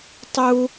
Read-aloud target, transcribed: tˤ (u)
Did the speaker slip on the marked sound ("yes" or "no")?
no